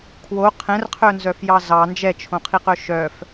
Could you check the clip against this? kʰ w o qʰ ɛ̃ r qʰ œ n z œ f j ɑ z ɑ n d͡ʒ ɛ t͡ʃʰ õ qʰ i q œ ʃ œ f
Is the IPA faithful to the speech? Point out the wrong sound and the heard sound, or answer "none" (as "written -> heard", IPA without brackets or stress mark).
none